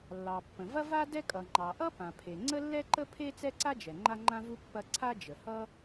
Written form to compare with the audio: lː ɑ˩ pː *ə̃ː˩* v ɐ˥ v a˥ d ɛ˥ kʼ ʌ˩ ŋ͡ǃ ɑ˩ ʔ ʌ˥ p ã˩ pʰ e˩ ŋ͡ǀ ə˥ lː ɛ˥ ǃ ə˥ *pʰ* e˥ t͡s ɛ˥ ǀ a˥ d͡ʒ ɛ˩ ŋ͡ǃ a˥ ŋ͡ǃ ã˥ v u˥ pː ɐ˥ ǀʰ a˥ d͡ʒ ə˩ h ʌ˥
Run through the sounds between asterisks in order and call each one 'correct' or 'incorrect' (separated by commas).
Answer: incorrect, correct